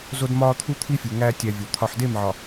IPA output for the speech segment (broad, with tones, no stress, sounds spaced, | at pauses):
z o˦ d m ɒː˦ t̪ʰ u˦ t̪ʰ i˦ fʲ u˨ ŋ æː˦ tʲ æ˨ vʲ o˨ t̪ʰ ɒ˨ ħ d e˦˨ m ʕ ɒ˨